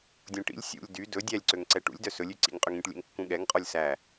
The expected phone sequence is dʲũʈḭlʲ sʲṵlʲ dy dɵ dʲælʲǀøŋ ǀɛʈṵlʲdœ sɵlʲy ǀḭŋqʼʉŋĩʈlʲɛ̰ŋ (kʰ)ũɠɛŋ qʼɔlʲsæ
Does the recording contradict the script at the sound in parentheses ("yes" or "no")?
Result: yes